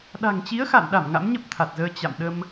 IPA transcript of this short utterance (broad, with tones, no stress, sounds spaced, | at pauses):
ɗ a̤˨˩ ŋ t͡ɕ i˨˦ ə̯ x a̰˧˨ n ɗ a˧˩ m ŋ a̰˧˥ m ɲ ə˦˥ p̚ t̪ʰ a˨˩ t̚ z əː˧ t͡ɕ a̰˧˨ m ɗ ə˧ m